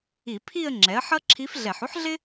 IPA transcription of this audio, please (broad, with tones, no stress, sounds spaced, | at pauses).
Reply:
i˧˩˧ pʰ i˥˧ ə̯ ŋ͡ǁ ɛ˩˥ ə̯ ħ ʌ˥ ǁʰ i˧˥ f ɮ ɛ˧˩˧ ħ u˥ ħ ɮ ɪ˥